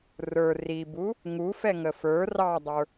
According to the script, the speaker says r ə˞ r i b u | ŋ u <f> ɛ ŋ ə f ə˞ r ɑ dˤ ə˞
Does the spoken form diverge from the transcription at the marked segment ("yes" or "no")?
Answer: no